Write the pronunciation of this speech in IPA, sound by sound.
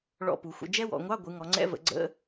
ɭ ɔ̰˧˥˧ p u˩˧ xʷ ə̰˧˥˧ d͡ʒ ɛ˦˥ w ɔ̰˩˧ ŋʷ ɑ˧˥˧ ɡʷ ɯ˩˧ ŋ ɔ˩˧ ŋ͡ǀ ɛ̰˧˥˧ v ə̰˩˧ ɡ͡ǀ ə̰˧˥˧

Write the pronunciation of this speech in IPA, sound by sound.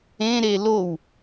ẽ ɾ e l o w

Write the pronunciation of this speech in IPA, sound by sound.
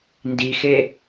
n d i x e

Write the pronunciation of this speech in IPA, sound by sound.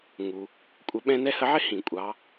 ŋ u˨ | kʷʼ ə˧˥ ɓ ɛ̃˥ n ɛ˥ h ə˧˥ ʕ ɪ˥ h ĩ˨ kʷʼ ɑ˧˥

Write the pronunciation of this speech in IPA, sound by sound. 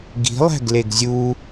ɡ i̤ lˠ æ̤ ɡ l e ɡ zʲ u

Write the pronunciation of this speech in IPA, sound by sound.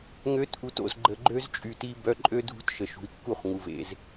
ŋ ø˨˦ t ʔ u˨ t o̰˨ z ɡ͡ǃ ə˨ ɡ͡ǃ ø˦ z t͡ʃʼ y˨ t i˦ b œ˦ ǃʼ ø˦ dʱ ṳ˦ t ʃ ə˨ ʃ ṳ˨ i̯ kː u˦˨ χ ŋ u˨ v ḛ˦ z

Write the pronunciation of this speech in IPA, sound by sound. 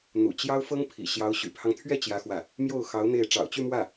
n̪ ṵ˨˩ t͡ɕ j ɑ˥ ʊ̯ f ɤ˥ ŋ pʰ ḭ˨˩ ɕ j ɑ˧˥ ʊ̯ ɕ y̰˨˩ pʰ ɑ˦ ŋ t̪ʰ ɥ ɛ˥˩ t͡ɕ j ä˥ x w ä˥˩ | m j o˥˩ ʊ̯ x ɑ˧˥ ʊ̯ n̪ e˥˩ ɪ̯ ʈ͡ʂ ɑ̰˨˩ ʊ̯ t͡ɕ y˥˧ m w ä˥˩

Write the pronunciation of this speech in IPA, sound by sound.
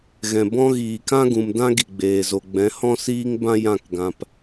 ɣ ɛ̃˨ b ɔ̃˦ ɣ iː˨ k ã˦ ɡ ũ˨ m d ã˦ ɡ i˨ ɡ͡b eː˨ z o˨ ɡ͡b ɛ̃˨˦ h ɔ̃˦ s iː˦ ŋ b ã˦ j ã˦˨ k ɡ ã˨ p

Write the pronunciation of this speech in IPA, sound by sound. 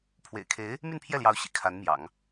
pʰ w ḛ˨˩ ɪ̯ kʰ e˧˥ ɪ̯ | m y˥˧ n pʰ j ɛ˥˩ l j ɑ˧˥ ʊ̯ ɕ ḭ˨˩ kʰ a˧˥ n m j ɑ̰˨˩˦ ŋ

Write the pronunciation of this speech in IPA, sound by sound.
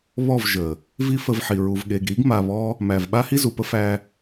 β ɔ˦˨ v ʒ ə˨ | v i˦ f ə˧ v ħ i˨ ɹ u˨ v ɠ e˨ ɡ ɾ i˨˦ ɡ m a˧ β ɔ˦ | m æ˨ v ɓ a˦ h i˦ z u˨ p ə˦ f æ˧

